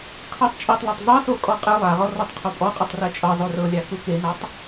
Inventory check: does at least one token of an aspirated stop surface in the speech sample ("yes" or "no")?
yes